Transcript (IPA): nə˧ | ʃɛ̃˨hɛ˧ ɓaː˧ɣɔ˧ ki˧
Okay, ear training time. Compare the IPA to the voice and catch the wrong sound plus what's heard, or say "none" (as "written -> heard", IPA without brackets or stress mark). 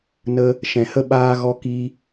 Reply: ɛ˧ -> ə˧